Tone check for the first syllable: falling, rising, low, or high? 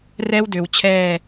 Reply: high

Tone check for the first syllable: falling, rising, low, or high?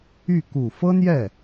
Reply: falling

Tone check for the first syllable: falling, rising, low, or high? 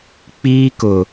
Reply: high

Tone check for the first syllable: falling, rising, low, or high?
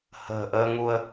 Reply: low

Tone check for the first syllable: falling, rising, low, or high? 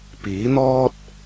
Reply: rising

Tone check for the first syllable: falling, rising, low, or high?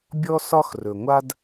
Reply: high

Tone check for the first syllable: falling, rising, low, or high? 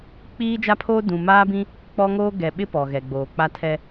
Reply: high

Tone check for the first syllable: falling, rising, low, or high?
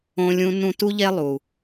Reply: high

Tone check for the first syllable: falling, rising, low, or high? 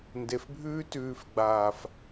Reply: low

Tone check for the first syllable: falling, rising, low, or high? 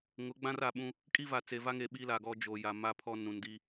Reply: rising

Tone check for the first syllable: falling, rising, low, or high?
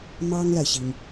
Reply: high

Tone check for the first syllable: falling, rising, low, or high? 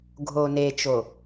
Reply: low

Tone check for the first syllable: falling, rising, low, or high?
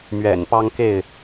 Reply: low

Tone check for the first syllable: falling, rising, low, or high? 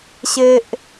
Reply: high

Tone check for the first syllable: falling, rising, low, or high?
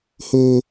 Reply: high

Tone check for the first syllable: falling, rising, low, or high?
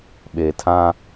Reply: low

